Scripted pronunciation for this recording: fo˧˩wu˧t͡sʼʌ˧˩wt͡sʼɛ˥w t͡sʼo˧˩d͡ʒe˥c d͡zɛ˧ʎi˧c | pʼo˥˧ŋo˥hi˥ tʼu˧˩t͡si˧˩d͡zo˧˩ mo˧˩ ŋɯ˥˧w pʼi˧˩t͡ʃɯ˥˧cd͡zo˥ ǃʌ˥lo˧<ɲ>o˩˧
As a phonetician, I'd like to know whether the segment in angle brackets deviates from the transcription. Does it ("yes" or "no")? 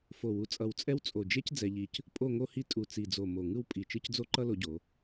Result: yes